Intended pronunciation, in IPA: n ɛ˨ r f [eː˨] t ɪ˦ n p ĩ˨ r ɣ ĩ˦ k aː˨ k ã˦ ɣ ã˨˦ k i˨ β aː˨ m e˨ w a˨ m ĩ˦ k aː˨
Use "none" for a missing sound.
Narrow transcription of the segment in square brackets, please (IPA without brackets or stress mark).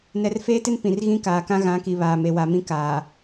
eː˦